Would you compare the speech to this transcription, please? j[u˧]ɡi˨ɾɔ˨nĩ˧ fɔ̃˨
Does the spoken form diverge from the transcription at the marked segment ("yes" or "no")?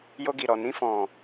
yes